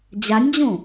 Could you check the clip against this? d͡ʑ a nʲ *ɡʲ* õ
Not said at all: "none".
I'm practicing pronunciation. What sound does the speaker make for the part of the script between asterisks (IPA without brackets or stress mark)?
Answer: d͡ʑ